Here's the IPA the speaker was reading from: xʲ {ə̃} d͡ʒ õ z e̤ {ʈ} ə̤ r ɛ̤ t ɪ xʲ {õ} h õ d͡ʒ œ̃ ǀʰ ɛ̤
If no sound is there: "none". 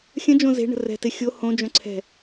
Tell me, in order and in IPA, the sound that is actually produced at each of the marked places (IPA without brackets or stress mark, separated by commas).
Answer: ə̃, ɳ, o